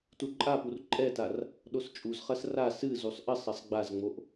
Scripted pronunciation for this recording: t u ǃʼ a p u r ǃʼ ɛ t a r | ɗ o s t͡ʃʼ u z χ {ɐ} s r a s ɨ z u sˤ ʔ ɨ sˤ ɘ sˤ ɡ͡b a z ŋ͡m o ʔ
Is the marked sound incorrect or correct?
correct